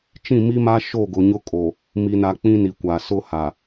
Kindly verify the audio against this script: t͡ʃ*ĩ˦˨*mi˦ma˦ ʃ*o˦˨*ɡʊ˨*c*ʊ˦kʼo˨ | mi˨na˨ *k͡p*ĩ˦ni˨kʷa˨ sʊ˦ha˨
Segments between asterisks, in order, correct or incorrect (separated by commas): correct, correct, incorrect, correct